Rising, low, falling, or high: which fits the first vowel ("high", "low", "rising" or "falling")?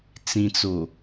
low